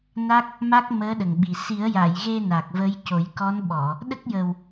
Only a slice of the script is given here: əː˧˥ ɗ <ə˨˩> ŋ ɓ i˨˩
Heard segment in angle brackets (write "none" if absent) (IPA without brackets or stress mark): ə˨˩